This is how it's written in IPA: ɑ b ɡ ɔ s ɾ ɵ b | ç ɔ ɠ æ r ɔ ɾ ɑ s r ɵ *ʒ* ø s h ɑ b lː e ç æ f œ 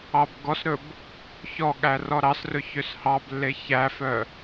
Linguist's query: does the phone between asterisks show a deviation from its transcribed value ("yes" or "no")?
yes